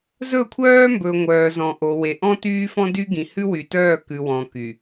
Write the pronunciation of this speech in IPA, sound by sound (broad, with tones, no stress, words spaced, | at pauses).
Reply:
zɵ˦˨kʷʰœː˦mbɵ˨ŋʷœː˨ zɔ̃˨ʔo˨ we˨ʔɔ̃˦ tyː˦fɔ̃˦dy˦ ɡĩ˨hʉ˦wy˨tœː˦˨ kʉ˨wɔ̃˨ ky˨